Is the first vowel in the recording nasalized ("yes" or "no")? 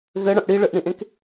no